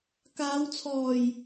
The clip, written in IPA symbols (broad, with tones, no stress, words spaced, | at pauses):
kaː˨˧wt͡sʰɔː˨˩j